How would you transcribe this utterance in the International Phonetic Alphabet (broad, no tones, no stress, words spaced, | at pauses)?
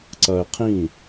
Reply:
ǀɐːɪ̯qʰĩ